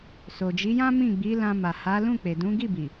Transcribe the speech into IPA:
s o˨ d͡ʒ i˨˦ j ã˦ m ĩ˦˨ ɡ͡b i˨˦ l ã˧ m a˨ h a˨˦ l ũ˦˨ k͡p e˨ d ũ˨˦ ɡ i˦˨ b i˨

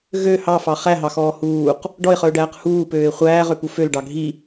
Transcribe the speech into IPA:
ɣ ø h ɑ f ɑ χ æ ɦ ɑ x ɔː h uː q | ɖ ɔ ɪ̯ χ œ ʊ̯ ɖ æː q h uː p øː ɪ̯ χʷ æː ʁ ø p u f ø l ɖ ɑ ɡʱ i

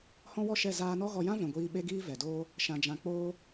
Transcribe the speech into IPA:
h ɔ̃˦ w ɔ˦ ʃ ɛ˦˨ z aː˧ n ɔ˦ ɣ ɔ˧ j ã˦ v ɛ̃˨ ɡʷ iː˧ ɓ e˦ ɡ iː˦ v ɛ˨ d oː˦ | ʃ ã˨ d͡ʒ ã˨ k͡p oː˧

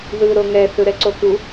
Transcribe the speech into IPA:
ð ɯ ɾ o ŋ ɛ θ ɯ ɾ ɛ ǀ o k u

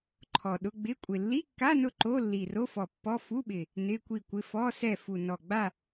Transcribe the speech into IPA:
ǃʰ ɔ˨˩ ɗ ʊ˧˥˧ ɡ͡b ɪ˧˥˧ kʷʼ ɪ˨˩ lː i˧˥˧ kː a˧˥˧ n ʊ˦˨ ǃ o˧˥˧ lː i˨˩ r o˧˥˧ f ɔ˨˩ pː ɔ˧˥˧ f u˧˥˧ ɓ ɪ˨˩ | n ɪ˧˥˧ kʷ i˦˨ kʷ ɪ˧˥˧ f ɔ˧˥˧ s ɛ˦˨ f u˨˩ n ɔ˨˩ ɡ͡b a˦˨

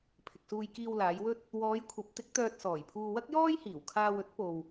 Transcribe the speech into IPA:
pʰ ɪ˨ k̚ s uː˧ j k iː˧ w l aː˨˧ j w ɵ˥ t̚ | w ɔː˨˧ j kʷʰ ɐ˨˥ p̚ t̪ ɪ˨˥ k̚ t̪ œː˧ t̚ s ɔː˨˩ j pʰ uː˧ w ɐ˥ k̚ j ɔː˥ j h iː˨˩ w kʰ aː˧ w ɵ˥ t̚ p o˧ w

